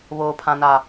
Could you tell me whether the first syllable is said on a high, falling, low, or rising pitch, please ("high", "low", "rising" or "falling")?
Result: low